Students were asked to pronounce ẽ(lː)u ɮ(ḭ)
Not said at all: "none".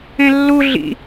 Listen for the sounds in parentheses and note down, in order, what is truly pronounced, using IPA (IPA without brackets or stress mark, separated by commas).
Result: lː, ḭ